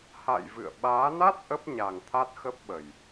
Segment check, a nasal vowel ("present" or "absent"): absent